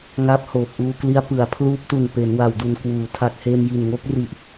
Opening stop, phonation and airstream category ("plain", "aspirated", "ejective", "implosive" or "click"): plain